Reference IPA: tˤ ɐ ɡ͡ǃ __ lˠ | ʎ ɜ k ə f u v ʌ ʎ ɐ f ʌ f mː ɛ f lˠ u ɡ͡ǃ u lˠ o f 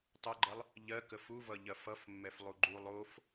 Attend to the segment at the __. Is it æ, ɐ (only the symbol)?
ɐ